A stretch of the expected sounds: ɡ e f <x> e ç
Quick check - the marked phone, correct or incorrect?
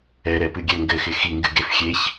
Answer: incorrect